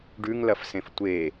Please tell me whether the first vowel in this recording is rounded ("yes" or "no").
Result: yes